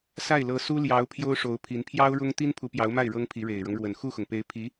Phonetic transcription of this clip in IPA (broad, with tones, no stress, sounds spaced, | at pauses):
s a˥˩ ɪ̯ l ɤ˧˥ s u˥ l j ɑ˧˥ ʊ̯ pʰ j o˥ ʊ̯ ʂ o˧˥ ʊ̯ pʰ i˧˥ n pʰ j ɑ˥ ʊ̯ ɻ ʊ˥ ŋ t̪ i˥ n pʰ u˧˥ p j ɑ˧˥ ʊ̯ m a˥˩ ɪ̯ ɻ ɤ˥ ŋ pʰ i˧˥ ɻ e˨˩ ɪ̯ ɻ ɤ˦ ŋ ɻ w ə˨˩ n x u˥˩ x ʊ˩ ŋ p e˧˥ ɪ̯ pʰ i˧˥